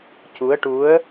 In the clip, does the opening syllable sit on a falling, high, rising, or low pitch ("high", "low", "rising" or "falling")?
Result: rising